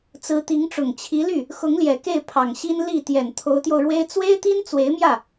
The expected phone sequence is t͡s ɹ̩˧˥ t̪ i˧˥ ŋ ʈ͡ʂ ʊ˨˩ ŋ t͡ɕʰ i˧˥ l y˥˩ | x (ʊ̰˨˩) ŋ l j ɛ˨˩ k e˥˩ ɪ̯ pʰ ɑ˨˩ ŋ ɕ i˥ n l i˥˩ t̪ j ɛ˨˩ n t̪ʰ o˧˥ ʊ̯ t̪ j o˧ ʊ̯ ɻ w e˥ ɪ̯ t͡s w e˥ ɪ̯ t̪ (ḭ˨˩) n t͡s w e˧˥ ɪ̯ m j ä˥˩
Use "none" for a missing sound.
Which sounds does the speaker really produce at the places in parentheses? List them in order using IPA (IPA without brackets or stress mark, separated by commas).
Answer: ʊ˧˥, i˥